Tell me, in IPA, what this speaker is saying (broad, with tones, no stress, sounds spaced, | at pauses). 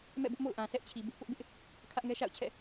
m ɛ̰˦˨ b ʊ˦ ʔ m o̰˦˨ ʊ̯ ʔ ã˨ sʰ ɛ˦ ʔ t͡ɕʰ i˨ b ɪ˦ ʔ p ʊ˦ ʔ b ɪ˦ ʔ | kʰ ä˦ ʔ ŋ ɛ˦ ʃ a̰˦˨ ʊ̯ t͡ɕʰ ɛ̰˦˨